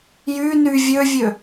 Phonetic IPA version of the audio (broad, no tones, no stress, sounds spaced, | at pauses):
j y n y vʲ ø vʲ ø